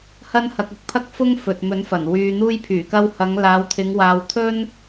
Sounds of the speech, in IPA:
hɐ˥nhɐ˧k̚ʊ˨˥k̚ pʰɐ˥k̚fʊ˥ŋ fɵ˨t̚mɵ˨˥nfɐ˨˩n wyː˨n̪uː˧jpʰyː˨˩kɐ˧w hɐ˨˧ŋlaː˨˧wt̪ʰɪ˨˧ŋ waː˧wt̪ʰɵ˥n

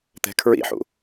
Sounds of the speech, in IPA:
t̪ɛ̤kʰɹḭħṵ

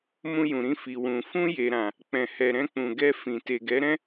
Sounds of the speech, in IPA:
mũ˧jũ˨ɾĩ˧ fi˨wũ˨ fũ˧je˨ɾã˨ | k͡pɛ̃˨hɛ˨ɾɛ̃˧k͡pũ˨ ɡɛ˧ fĩ˨te˨ ɡɛ˨˦ɾɛ̃˦

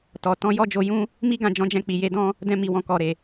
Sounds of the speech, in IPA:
tɔ˨ tɔ̃˧jɔ˦d͡ʒo˧jũ˦ | mi˦ɡã˦˨ d͡ʒɔ̃˨˦d͡ʒɛ̃˧k͡pi˨ je˨˦dɔ̃˦ | dɛ̃˧mi˨ wɔ̃˨kɔ˨ɾe˨

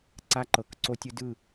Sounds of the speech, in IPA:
ǀa˦ǃɤ˨k ǀo˦tʲɯ˦ dɯ˦˨

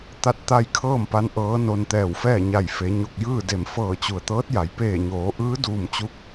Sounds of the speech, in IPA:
t̪a˥˨t̚t̪a˥˨j kʰɤː˥˨mpa˧n ʔɤː˧˥no˧nt̪ɛː˧˩wfɛː˥˨ ɲa˧˩jfe˩˧ ɲo˧˩k̚jɯː˥˨de˧˩m fɤː˧˩t͡ɕu˩ə̯t̪ɤː˧˥t̚ja˩˧j peː˧˩ɲoː˩˧ʔɯː˧˥ duː˧˩mt͡ɕu˧k̚

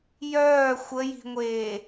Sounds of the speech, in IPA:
jœː xʷəji̤ŋʷeː

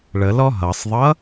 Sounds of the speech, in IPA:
ɭəlɔ ɦʌsˤðˤʌ

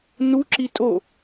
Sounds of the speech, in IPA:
nuǁi tʼo

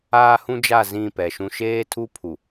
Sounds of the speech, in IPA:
aː˦hũ˦d͡ʒa˦˨ zĩ˦˨pɛ˨ʃũ˦ ʃeː˦tʰu˦pʰu˨

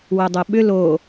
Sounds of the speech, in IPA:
wodˤoɓʏ lo

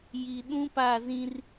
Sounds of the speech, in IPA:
ji˨ ɗũ˦pa˦˨zĩ˦r

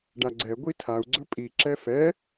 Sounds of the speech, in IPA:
ɖaɡ͡ǀɛ ɡʷitʰau̯ ɡ͡ǀɵpʼi ǁɛfɛ

